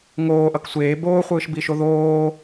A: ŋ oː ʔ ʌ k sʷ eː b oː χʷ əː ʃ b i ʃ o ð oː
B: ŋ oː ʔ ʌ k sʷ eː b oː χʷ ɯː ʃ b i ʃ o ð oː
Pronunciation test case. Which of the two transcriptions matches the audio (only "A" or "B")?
B